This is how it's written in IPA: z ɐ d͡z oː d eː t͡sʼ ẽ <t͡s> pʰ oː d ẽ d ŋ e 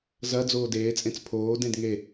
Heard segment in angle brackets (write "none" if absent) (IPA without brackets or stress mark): t͡s